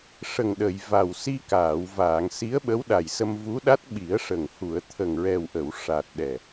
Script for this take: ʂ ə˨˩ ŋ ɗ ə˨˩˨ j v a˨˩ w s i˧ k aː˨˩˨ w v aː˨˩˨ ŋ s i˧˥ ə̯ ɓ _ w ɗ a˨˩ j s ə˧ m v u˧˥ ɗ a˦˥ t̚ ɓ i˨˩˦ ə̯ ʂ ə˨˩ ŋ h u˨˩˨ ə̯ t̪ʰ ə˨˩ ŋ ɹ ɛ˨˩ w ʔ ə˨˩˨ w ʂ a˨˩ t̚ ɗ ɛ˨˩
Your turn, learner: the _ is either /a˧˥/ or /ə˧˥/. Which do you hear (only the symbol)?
ə˧˥